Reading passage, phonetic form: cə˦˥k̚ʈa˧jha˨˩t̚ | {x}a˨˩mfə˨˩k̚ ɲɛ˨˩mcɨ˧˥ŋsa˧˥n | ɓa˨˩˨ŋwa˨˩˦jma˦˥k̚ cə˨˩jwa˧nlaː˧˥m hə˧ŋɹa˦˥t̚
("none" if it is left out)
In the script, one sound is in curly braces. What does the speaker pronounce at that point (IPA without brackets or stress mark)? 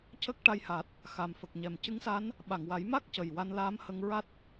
x